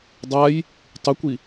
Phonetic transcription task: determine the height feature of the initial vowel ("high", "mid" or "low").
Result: low